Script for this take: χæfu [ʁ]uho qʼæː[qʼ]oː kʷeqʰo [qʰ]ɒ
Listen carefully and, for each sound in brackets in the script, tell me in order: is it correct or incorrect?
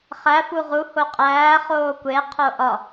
correct, incorrect: χ, incorrect: ʔ

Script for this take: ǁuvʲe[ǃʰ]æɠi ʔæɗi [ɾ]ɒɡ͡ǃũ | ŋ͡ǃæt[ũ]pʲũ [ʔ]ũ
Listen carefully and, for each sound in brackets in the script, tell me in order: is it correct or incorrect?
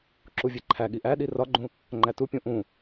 correct, incorrect: r, incorrect: u, correct

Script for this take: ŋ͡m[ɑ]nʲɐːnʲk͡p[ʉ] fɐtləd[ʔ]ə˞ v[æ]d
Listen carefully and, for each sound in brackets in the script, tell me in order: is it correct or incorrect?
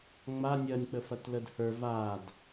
incorrect: a, incorrect: ə, incorrect: h, incorrect: a

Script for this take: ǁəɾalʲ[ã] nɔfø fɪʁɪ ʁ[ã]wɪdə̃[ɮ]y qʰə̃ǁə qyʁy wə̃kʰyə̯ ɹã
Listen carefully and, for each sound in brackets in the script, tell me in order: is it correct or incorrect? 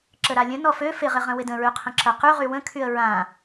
incorrect: ə̃, incorrect: ə̃, incorrect: ɹ

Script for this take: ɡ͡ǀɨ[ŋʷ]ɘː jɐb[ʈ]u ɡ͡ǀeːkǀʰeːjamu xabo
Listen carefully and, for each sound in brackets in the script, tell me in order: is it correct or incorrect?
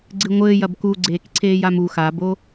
correct, incorrect: k

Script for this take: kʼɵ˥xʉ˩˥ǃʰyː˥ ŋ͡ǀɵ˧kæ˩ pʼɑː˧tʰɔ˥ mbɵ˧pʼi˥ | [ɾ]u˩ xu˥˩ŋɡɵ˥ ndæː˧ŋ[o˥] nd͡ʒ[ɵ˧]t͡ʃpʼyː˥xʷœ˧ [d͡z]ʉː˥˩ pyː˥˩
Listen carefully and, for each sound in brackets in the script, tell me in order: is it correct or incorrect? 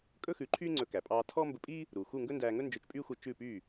correct, incorrect: ɵ˥, correct, incorrect: t͡ʃ

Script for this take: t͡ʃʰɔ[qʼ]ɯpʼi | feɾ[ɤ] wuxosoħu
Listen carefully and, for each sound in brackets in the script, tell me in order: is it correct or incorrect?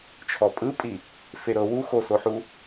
incorrect: pʼ, correct

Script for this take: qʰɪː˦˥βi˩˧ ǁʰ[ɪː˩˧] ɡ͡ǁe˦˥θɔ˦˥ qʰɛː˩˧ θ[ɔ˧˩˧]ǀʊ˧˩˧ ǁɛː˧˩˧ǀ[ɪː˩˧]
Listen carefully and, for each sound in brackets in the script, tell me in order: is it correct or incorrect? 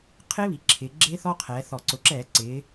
correct, correct, correct

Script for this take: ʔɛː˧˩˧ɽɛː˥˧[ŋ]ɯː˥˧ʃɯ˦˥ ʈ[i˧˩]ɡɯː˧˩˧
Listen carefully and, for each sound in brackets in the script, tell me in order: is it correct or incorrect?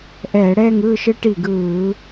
correct, correct

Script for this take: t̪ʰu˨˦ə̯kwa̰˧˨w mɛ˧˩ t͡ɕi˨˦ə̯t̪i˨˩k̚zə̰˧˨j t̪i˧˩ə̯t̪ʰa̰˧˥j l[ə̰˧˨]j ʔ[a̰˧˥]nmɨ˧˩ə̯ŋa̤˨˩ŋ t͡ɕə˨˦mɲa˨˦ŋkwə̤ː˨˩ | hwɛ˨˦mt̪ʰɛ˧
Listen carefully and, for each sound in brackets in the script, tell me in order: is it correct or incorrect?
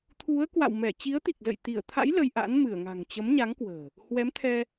incorrect: ə˧, correct

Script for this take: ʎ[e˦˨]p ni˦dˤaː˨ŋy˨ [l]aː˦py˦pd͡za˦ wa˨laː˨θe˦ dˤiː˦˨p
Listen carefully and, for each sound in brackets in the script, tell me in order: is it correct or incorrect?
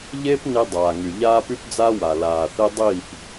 incorrect: e˦, incorrect: ʎ

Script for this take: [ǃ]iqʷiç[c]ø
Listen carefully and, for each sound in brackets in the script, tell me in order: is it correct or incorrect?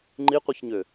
incorrect: ŋ͡ǃ, incorrect: ɲ

